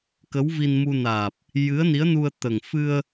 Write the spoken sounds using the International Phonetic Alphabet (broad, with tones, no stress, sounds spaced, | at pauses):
k ə˧˥ w v i˧ n m u˧ n aː˨˩ p̚ | j ɨ˧˥ ə̯ n i˧˥ ə̯ n u˧ ə̯ t̪ ə˨˩ ŋ f ɨ˧ ə̯